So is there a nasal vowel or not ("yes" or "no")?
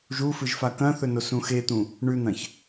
yes